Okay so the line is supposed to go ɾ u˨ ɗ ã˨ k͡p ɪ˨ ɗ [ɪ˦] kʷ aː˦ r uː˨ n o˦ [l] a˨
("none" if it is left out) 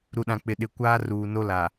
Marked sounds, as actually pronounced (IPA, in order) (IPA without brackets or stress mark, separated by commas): ɪ˨, l